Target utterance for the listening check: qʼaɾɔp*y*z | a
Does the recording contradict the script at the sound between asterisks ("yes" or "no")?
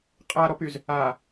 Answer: no